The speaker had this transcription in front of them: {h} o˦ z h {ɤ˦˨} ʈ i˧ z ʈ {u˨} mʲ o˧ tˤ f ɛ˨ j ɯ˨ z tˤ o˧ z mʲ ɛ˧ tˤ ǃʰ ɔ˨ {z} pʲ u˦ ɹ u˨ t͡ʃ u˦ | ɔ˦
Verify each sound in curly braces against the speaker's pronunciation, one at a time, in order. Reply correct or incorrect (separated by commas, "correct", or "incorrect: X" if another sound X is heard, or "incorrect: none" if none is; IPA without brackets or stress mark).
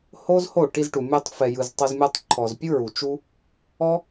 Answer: correct, incorrect: o˦˨, correct, correct